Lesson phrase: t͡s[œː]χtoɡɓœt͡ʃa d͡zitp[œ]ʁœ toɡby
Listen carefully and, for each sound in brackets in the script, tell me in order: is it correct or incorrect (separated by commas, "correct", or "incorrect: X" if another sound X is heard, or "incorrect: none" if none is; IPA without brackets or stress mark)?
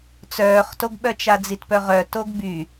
correct, correct